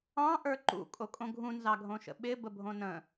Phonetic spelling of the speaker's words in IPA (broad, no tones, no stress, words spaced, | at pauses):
ɑ̃ʔə˞ ǃṵkʼokʼõ ɡʱũnzɑɡʱõʃə̰ ɓɪbəbʱõ nə̃